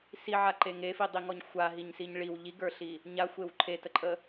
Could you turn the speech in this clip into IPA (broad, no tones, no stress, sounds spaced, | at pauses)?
s i ʕ a ǃ e ŋ e f i dˤ i ŋ ɔ ɲ xʷ a ɦ i ɲ s i ɲ ɭ i w ʎ i ɡ ə˞ ɬ i | ɲ a xʷ e w ǃʰ e t ə ǃʼ ə